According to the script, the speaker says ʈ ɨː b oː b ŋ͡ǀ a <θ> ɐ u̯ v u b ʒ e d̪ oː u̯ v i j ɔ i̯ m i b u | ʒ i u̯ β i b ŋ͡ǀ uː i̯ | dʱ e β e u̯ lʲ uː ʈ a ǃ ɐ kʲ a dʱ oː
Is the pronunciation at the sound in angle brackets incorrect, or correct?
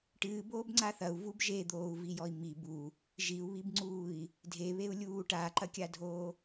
correct